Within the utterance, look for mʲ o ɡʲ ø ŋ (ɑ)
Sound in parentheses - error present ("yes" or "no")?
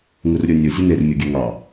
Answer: no